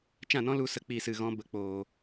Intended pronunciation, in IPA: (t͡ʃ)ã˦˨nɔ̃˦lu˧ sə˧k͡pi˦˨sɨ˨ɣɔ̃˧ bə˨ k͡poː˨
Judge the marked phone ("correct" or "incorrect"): correct